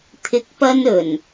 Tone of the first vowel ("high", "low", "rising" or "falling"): rising